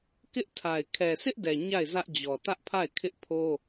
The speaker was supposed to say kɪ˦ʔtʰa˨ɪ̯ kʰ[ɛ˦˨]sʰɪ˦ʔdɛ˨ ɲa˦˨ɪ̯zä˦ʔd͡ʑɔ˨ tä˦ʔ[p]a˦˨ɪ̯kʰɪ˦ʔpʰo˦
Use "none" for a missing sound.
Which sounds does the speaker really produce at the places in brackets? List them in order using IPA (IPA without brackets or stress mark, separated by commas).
ɛ˨, pʰ